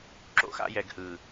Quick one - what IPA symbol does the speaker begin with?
ǁ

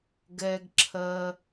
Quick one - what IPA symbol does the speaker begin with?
ɡ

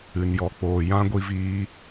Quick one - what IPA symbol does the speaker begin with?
ɨ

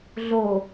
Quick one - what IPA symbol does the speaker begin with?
ɮ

